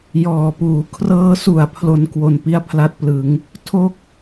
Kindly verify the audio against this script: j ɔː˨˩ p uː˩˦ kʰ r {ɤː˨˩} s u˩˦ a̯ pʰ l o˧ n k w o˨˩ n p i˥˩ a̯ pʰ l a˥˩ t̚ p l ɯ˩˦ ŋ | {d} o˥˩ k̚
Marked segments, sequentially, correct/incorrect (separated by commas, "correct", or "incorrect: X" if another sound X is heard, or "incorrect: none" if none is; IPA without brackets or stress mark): incorrect: ɤː˧, incorrect: tʰ